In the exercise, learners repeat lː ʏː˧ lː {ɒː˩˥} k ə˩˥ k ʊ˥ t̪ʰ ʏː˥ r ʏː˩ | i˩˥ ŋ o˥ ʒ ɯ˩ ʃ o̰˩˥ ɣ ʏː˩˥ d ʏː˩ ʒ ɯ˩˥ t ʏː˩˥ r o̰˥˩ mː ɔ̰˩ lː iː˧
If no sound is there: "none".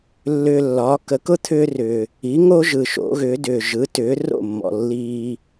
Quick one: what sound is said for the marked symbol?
ɒː˩˥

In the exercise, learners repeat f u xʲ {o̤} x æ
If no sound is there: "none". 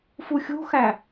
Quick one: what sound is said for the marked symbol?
o̤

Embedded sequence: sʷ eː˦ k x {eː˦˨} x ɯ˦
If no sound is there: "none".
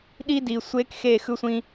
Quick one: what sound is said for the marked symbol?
eː˦˨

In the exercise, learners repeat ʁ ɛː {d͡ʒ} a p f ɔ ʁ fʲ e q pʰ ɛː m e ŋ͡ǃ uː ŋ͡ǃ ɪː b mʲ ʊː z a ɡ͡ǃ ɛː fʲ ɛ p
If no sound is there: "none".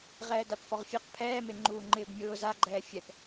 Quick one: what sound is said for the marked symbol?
d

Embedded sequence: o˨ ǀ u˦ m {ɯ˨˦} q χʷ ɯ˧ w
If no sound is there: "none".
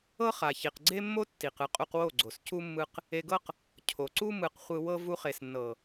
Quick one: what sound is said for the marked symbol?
ɯ˨˦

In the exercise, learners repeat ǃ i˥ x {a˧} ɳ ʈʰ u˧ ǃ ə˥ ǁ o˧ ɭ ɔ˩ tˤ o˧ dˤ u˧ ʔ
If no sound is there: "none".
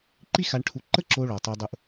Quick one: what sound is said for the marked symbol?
a˧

